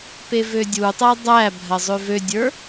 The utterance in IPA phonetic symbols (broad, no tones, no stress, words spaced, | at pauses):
pevødʲutˤɜ dˤæbʱɜ zˤøvødʲə˞